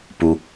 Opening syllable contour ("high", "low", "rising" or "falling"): low